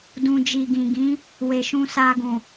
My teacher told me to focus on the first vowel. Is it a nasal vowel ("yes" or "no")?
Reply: yes